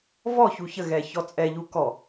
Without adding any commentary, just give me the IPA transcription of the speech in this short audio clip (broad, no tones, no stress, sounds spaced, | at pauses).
v ɔ ç u ç ə ɣ ɛ ç ɔ t͡sʼ ɛ ʎ u k ɔ